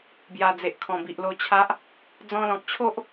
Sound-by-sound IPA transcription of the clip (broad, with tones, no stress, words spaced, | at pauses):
bja˨˩d͡ze˨ʔ kʰɔ̃˨˩bi˨ʔlo˧t͡ɕʰa˦ʔ | d͡zɔ̃˧lɔ̃˨k̚t͡ɕʰo˦ʔ